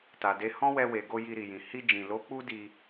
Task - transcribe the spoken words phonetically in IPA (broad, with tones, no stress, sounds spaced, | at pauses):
t a˨ d e˧ h ɔ̃˦ w ɛ˧ w e˨ ɡ o˧ j i˧ ɾ i˨ j ĩ˨ h i˧ d͡ʒ ĩ˨ l o˨˦ k͡p u˦ d i˧